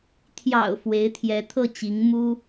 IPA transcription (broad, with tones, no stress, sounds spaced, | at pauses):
t̪ʰ j ɑ̰˨˩ ʊ̯ f w e˧˥ ɪ̯ t̪ʰ j ɛ˧˥ t̪ʰ ɤ˥˩ t͡ɕ i˧˥ ŋ m u˥